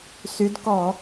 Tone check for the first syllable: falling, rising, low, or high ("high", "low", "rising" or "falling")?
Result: rising